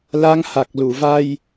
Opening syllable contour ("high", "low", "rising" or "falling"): rising